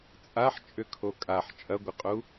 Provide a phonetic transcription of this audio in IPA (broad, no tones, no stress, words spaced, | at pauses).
t͡sʼaħt͡ʃʼʏkʰo kʼaħ t͡ʃʼɐɡʷɪqʼu